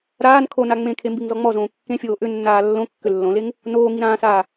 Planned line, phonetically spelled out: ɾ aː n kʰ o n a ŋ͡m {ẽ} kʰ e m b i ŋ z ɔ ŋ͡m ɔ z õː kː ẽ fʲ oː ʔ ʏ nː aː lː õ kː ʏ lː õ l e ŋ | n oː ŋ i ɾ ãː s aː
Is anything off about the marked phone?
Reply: no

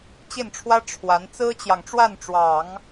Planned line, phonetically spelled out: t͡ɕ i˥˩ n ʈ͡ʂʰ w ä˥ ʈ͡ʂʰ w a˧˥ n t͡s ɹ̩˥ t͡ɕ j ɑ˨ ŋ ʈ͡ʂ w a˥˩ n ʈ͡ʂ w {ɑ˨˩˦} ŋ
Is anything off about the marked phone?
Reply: no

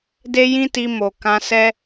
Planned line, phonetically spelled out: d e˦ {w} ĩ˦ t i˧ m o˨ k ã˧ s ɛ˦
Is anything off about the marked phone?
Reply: yes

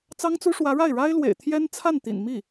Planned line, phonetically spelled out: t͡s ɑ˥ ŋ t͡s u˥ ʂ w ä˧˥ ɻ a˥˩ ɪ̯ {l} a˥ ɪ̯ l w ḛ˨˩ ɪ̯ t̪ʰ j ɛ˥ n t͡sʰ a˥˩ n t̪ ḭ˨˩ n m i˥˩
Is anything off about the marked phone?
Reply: yes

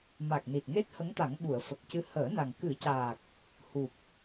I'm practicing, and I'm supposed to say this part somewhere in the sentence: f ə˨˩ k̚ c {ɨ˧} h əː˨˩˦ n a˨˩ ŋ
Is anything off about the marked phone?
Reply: no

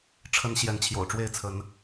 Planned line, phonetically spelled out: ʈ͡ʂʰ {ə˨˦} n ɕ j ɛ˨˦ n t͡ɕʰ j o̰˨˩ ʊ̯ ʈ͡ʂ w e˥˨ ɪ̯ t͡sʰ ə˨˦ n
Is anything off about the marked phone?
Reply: no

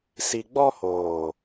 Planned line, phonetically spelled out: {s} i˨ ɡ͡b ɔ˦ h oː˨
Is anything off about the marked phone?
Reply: no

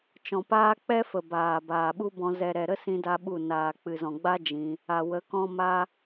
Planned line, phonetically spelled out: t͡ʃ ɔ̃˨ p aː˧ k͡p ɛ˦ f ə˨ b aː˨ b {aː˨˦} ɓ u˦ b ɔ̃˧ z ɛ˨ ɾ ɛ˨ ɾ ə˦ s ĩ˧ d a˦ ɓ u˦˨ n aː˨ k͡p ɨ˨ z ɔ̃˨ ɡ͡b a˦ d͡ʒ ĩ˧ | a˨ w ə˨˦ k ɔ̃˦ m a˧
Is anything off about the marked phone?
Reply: yes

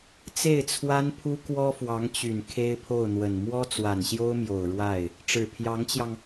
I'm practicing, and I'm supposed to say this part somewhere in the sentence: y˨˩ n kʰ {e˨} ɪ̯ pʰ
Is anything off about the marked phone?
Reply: yes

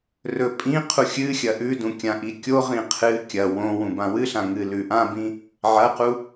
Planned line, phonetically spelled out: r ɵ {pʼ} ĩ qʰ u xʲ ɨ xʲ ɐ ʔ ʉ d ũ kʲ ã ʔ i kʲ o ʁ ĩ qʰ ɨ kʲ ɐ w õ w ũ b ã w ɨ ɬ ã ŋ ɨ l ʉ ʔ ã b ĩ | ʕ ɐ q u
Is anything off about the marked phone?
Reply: no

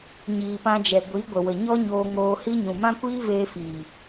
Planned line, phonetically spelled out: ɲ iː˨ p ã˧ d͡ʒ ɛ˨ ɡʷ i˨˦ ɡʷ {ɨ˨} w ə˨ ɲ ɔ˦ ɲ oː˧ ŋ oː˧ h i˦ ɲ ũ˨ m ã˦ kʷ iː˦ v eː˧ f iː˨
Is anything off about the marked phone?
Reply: yes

